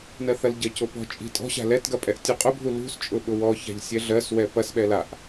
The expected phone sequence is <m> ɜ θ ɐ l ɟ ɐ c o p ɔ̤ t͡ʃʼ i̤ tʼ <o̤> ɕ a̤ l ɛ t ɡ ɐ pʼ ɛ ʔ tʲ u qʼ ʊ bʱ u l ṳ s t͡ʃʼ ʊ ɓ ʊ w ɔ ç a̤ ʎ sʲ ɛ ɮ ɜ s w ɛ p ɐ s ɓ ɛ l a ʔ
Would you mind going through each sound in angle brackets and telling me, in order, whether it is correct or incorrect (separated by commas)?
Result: incorrect, incorrect